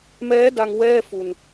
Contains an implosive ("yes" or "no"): no